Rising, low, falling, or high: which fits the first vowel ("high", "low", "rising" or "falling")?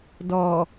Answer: low